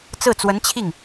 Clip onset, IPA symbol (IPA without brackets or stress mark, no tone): t͡s